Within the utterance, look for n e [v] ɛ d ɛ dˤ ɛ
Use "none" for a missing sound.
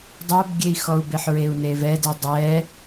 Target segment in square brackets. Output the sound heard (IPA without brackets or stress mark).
v